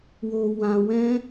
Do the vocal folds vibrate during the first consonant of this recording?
yes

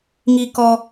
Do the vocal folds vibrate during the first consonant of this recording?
yes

